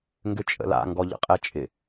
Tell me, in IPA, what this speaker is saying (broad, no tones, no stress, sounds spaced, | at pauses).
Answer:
ŋ ɡ ʏ t͡ʃʼ ə̰ l a̰ ŋ ɡ ɔ ʎ ə̰ qʼ ɛ t͡ʃʼ ɪ